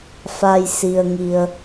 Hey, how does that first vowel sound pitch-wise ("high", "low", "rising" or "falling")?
low